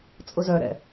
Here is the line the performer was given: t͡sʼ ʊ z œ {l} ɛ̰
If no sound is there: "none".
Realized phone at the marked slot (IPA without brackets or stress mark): ɾ